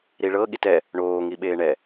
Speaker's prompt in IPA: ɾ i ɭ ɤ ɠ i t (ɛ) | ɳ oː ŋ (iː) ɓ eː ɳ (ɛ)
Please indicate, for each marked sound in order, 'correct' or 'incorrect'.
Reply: correct, incorrect, correct

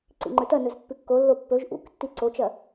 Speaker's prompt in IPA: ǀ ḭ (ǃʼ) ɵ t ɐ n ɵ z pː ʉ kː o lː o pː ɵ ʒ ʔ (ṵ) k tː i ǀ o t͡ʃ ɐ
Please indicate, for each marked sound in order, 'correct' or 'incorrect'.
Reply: incorrect, correct

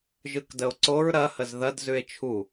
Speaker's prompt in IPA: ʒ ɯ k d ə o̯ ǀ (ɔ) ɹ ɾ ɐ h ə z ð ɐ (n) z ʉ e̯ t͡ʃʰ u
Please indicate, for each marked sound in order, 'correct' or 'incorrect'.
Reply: incorrect, incorrect

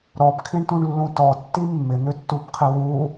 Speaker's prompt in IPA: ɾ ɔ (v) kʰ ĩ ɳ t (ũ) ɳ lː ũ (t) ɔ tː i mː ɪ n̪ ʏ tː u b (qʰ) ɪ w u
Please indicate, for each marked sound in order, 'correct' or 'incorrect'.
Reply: incorrect, correct, correct, correct

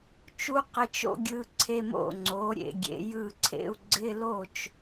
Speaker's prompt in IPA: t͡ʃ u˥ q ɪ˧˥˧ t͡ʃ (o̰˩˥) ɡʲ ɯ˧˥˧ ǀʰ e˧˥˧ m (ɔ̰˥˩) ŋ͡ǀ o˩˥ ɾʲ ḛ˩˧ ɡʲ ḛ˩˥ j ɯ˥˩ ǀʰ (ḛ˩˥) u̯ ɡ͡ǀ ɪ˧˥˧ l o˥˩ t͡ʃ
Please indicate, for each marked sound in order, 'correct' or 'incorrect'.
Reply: incorrect, incorrect, incorrect

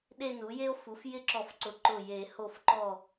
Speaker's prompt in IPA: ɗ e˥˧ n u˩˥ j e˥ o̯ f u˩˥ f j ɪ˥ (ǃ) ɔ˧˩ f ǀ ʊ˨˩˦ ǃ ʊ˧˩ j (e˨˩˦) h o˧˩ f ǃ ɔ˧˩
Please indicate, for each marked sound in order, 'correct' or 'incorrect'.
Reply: incorrect, correct

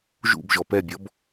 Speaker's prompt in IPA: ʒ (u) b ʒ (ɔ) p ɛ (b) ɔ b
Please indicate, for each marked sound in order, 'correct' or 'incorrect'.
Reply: incorrect, correct, incorrect

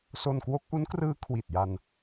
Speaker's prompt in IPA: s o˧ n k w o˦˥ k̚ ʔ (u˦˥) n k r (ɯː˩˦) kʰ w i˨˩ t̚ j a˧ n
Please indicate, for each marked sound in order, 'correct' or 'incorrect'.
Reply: correct, incorrect

